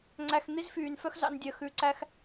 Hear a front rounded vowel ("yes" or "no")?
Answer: yes